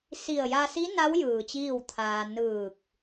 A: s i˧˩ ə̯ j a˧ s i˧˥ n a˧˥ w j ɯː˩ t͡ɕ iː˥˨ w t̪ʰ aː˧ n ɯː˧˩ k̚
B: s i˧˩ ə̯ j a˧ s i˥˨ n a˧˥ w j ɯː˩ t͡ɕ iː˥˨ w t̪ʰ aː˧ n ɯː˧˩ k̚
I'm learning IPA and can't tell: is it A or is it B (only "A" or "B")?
A